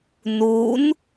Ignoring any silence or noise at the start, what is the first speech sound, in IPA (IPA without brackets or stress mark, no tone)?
n